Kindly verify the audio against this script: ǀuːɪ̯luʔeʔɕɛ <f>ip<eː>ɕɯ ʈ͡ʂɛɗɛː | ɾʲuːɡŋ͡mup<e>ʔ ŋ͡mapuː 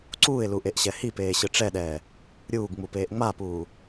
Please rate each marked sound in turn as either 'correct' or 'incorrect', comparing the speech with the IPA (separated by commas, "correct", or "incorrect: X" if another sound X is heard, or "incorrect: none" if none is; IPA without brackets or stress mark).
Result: incorrect: h, correct, incorrect: eː